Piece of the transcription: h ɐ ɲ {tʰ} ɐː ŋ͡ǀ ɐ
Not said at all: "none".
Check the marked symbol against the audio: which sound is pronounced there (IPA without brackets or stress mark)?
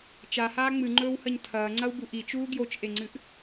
tʰ